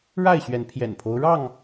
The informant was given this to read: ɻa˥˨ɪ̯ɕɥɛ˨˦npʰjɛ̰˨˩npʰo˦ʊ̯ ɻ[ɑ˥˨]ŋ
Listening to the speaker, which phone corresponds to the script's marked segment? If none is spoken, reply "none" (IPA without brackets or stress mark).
ɑ˥˨